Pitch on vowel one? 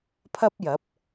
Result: high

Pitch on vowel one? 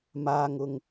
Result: low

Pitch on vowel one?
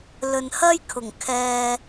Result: low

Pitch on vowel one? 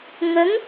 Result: rising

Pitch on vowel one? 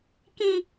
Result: high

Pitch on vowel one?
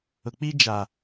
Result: low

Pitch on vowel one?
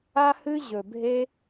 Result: high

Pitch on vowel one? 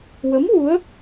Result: rising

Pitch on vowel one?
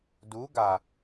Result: rising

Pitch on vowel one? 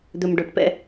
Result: low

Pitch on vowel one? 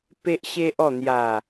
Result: high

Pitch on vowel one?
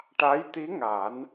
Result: rising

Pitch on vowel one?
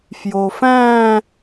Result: low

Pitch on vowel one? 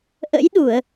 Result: rising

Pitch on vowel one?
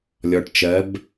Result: low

